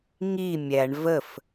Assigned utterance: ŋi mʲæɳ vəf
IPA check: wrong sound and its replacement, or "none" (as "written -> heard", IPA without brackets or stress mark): none